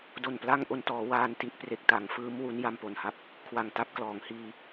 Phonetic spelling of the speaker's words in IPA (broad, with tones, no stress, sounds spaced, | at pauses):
d o˨˩ n p l a˥˩ ŋ ʔ o˧ n t ɔː˩˦ w aː˧ n t i˦˥ ʔ p r e˨˩ k̚ t a˩˦ ŋ f ɯː˦˥ m w u˦˥ n j a˧ m p o˨˩ n h a˦˥ p̚ | kʰ w a˨˩ ŋ t a˦˥ p̚ k l ɔː˩˦ ŋ h iː˧